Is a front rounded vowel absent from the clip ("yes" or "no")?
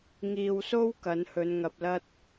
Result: yes